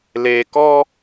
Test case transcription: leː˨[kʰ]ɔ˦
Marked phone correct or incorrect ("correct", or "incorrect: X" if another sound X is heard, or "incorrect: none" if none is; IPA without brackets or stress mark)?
incorrect: k